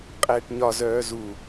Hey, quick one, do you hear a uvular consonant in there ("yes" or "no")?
yes